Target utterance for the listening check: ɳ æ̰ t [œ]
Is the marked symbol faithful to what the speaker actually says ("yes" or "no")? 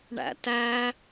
no